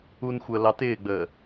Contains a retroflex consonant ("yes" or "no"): no